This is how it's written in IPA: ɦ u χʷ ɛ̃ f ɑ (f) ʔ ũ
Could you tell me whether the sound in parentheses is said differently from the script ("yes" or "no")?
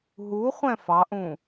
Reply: yes